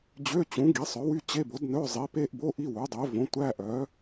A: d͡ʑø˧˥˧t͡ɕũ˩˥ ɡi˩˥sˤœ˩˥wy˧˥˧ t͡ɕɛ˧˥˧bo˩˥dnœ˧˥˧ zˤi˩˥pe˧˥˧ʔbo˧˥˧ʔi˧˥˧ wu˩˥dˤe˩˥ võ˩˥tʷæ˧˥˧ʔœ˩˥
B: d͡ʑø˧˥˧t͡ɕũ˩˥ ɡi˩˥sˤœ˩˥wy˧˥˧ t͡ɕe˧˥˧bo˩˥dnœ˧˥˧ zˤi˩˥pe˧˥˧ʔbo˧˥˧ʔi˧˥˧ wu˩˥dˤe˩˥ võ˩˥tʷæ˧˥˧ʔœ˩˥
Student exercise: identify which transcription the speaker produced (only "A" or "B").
B